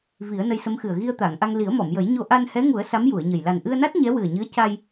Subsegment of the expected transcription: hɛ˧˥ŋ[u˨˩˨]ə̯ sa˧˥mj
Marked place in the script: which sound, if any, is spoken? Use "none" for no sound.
u˨˩˦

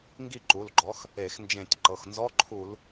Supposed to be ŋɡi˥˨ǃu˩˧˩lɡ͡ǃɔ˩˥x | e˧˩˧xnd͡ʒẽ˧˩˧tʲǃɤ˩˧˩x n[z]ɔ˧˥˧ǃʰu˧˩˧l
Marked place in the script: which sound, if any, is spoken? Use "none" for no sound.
z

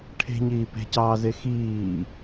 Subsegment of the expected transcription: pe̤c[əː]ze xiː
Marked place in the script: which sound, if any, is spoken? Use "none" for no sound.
ɑː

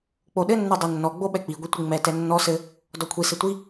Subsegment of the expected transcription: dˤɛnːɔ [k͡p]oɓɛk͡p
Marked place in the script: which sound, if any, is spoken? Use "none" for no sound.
ɡ͡b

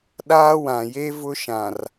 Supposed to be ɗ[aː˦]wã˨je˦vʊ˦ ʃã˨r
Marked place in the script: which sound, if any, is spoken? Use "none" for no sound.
aː˦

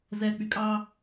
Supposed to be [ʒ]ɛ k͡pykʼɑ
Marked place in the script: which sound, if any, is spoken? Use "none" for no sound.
z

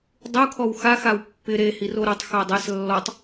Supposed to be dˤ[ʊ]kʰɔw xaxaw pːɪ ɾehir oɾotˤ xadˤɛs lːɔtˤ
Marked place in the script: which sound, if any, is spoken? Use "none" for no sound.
u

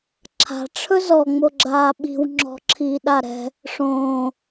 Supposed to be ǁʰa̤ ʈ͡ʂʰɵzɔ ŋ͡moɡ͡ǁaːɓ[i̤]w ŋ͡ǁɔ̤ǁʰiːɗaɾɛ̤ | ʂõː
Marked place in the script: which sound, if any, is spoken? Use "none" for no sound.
i̤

